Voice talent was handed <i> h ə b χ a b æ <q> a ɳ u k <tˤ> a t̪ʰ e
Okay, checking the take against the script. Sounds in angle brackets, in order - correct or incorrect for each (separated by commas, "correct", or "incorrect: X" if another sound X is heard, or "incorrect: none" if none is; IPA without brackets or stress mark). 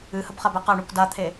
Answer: incorrect: ɨ, correct, incorrect: d